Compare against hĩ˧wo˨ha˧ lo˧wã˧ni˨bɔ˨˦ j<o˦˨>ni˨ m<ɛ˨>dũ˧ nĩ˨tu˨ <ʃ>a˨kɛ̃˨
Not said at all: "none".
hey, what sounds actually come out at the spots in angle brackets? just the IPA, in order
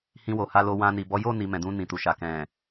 o˦˨, ɛ̃˨, ʃ

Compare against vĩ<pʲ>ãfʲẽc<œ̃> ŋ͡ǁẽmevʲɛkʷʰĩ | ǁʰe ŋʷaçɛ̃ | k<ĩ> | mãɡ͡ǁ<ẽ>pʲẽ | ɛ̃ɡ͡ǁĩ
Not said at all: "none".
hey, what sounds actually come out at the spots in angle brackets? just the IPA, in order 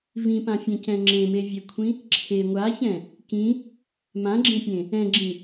p, ɛ̃, ĩ, ẽ

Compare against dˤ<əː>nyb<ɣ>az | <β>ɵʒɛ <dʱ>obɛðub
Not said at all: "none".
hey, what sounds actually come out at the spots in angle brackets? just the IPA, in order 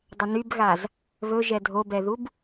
ə, ɣ, β, dʱ

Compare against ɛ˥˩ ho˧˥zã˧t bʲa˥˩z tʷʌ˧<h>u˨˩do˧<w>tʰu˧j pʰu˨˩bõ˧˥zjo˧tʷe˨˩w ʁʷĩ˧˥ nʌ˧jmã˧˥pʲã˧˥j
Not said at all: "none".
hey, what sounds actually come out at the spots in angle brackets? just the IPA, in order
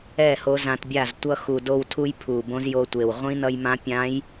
x, w

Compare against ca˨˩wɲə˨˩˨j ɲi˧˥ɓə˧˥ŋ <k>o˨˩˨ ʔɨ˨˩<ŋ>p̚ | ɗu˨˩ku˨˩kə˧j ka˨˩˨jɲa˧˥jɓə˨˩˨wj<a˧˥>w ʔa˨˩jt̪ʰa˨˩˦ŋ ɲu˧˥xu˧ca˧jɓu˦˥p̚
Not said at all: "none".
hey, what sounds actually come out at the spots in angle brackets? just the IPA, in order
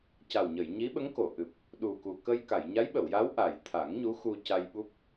k, none, a˧˥

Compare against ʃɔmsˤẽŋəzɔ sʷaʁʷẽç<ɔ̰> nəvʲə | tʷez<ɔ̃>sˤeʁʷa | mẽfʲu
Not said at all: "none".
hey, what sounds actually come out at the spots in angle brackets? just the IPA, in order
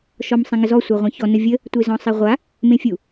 ɔ, ɔ̃

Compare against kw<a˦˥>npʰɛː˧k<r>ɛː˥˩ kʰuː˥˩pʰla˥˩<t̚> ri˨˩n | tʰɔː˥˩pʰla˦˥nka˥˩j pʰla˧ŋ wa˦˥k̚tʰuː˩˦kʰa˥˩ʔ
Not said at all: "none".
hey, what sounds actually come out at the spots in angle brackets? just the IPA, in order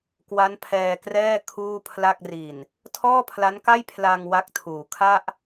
a˦˥, r, k̚

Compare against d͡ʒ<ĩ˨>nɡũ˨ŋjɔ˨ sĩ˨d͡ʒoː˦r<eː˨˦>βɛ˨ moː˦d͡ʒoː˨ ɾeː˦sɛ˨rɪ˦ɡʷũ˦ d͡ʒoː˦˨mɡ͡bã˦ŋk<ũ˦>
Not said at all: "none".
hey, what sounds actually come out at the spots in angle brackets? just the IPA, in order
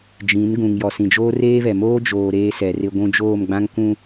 ĩ˨˦, eː˦, ũ˦

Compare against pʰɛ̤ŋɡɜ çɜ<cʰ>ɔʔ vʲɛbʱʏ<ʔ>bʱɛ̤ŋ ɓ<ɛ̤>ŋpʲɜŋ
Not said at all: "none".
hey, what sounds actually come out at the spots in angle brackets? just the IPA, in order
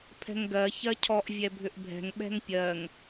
cʰ, ʔ, ɛ̤

